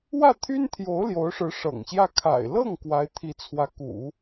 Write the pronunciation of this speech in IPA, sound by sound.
w ä˥˩ t̪ʰ y˥ n t̪ʰ j o˧˥ ʊ̯ l j o˧˥ ʊ̯ ʂ ɻ̩˧˥ ʂ ɤ̰˨˩ ŋ ɕ j ä˥˩ kʰ a̰˨˩ ɪ̯ l ɤ˥˩ ŋ k w a˧˥ ɪ̯ t̪ʰ i˧˥ t͡sʰ w ä˧˥ k ṵ˨˩˦

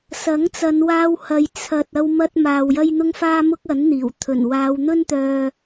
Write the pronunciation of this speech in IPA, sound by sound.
s ɐ˨˥ ŋ t͡s ɐ˨˧ n w aː˧ w h ɐ˨ j t͡sʰ ɐ˨ t̚ ɐ˧ w m ɐ˧ t̚ m aː˨ w j ɐ˧ j n̪ ʊ˧ ŋ f aː˧ m ʊ˧ k̚ ɐ˨˥ n n̪ iː˨˩ w t̪ʰ ɵ˨˩ n w aː˨˧ w n̪ ɵ˥ n t̪ œː˧

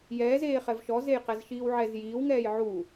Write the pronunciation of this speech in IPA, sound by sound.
j ɛː z eː χ ɛ v ʃ ɔ z e j q ɛ z ʃ iː w ʕ ɛ z j iː w ŋ ɛː j ʕ u

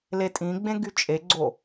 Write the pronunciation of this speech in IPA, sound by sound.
l e tʼ ĩ ɡ͡b ẽ ɡ y t͡ʃʼ e ɡ͡ǀ o

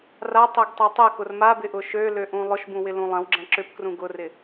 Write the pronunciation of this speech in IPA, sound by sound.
r a tˤ e ɡ tˤ e tˤ ɛ k ʊ r m a b ɪ ʔ ʊ ʃ ø l ø ʔ ũ lˠ ʊ ʃ b ũ w ɪ l ũ lˠ ɐ̃ w ɡ͡ǁ ɐ̃ ǁ ʏ p k r ũ ɡ ʊ r ɪ

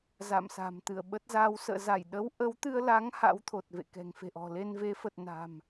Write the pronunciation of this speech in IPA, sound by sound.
z a̰˧˨ m s a̤˨˩ m t̪ ɨ˧˩ ə̯ ɓ ə˦˥ t̚ z a˨˦ w s ə̰ː˧˨ z a˧˩ j ɗ ə˨˦ w ʔ ə˨˦ w t̪ ɨ˧ ə̯ l a˨˦ ŋ h a̰˧˥ w t̪ʰ o˨˩ t̚ v ḛ˧˨ k ɛ̤˨˩ ŋ f e̤˨˩ ʔ ɔ̤˨˩ l e˧ n v e˨˦ f ə˨˩ t̚ n a̤˨˩ m

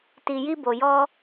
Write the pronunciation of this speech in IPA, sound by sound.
t i˨ j i˧ b o˨ j ɔ˧

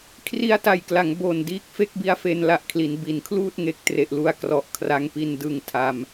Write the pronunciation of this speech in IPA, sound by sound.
kʰ r i˧ a̯ t a˨˩ j k l a˩˦ ŋ b o˨˩ n d iː˦˥ k̚ f e˥˩ k̚ b i˦˥ a̯ f e˧ n l a˦˥ ʔ kʰ l i˩˦ n b i˩˦ n kʰ l uː˥˩ t̚ ŋ e˨˩ k̚ t r e˨˩ ʔ l u˦˥ a̯ k r ɔ˨˩ ʔ kʰ r a˦˥ ŋ p i˧ n d ɯ˧ ŋ tʰ a˧ m

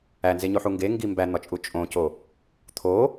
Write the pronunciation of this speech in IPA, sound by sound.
æ n z e ɲ o ħ u ŋ ɡ e ŋ ɡ i m b æ n̪ ɒ t͡ʃʼ u t͡ʃʼ õ c o | t̪ʰ o

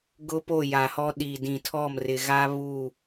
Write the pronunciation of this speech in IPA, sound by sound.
ɡ ʊ˦ p o˦˨ j a˨ h ɔ˦ ɗ i˨ d ĩ˨ tʰ ɔ˦˨ m r ɪ˨ ɣ a˦ β u˦˨

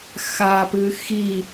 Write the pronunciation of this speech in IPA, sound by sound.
x a p ɨ x i

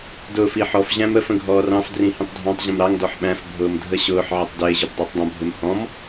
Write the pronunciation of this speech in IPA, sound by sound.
d ʊː f i ħ ɔ f ʑ æ̃ m ə f ə̃ ɡʱ ɔː r ɑ̃ f d r ĩ h ĩ tˤ dʱ ɑ̃ tˤ ʑ ə̃ m ɾ ɑ ŋ d ɔ ħ ɓ æ̃ f bʱ ʊː m dʱ ə ɕ ʊː ħ ʕ ɪ tˤ d ɪː ʑ ʊ b dˤ æ tˤ dˤ ə̃ bʱ ɪ m h ɔ̃ m

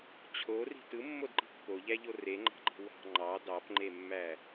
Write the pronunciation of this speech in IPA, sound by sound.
t͡ɕʰ o r i̤ t ɯ mː o d ǃ i̤ pː o ʎ æ ʎ o r e ŋ͡ǃ ɑ̤ ǃ i̤ w ɑ̤ ŋ͡ǃ ɑ d ɑ p ŋ͡ǃ e mː æ

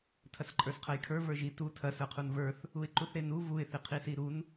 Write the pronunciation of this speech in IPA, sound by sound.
tʰ ɐ s ǃʼ ə˞ s qʰ ɐ j kʰ ə˞ v ə˞ ʒ i t u tʰ ɐ s ə˞ qʰ u n v ə˞ θ | u ɪ̯ ǃ u θ ɾ e n u v u ɪ̯ θ i qʰ i s i ɾ u n

